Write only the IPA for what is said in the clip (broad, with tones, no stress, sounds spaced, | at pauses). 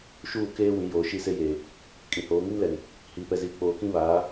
ʃ uː˦˨ k eː˦ w ĩ˨˦ j oː˨ ʃ i˦˨ s e˦ j eː˨ | kʼ ĩ˨ h oː˨˦ ŋ i˦ n l ɛ˨ n | h iː˨ p ɛ˨ z iː˨ k͡p oː˨ k ĩ˦ β aː˨˦